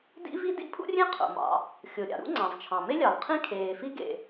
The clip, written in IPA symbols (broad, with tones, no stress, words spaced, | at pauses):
dḭ˥vi˥ dḭ˥pʰṵ˥rʲẽ˥ qʰo̰˩mɑ̰˩ | xʲo˩ ɾʲɑ̰˩ɾṵ˥ ŋ͡ǀɑ̃˩vt͡ʃʰɑ̃˩me˥lʲɑ˩lˠ qʰĩ˥kʰeː˩fi˥ɡḛ˩